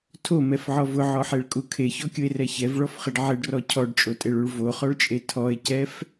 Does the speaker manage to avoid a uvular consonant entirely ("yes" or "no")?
no